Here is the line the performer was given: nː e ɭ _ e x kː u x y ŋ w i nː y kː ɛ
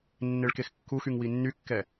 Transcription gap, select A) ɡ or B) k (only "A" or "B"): B